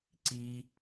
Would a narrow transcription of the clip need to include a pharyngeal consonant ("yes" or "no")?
no